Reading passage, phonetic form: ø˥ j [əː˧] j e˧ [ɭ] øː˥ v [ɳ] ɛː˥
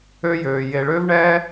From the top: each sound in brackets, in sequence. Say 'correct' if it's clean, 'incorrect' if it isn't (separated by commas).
incorrect, correct, correct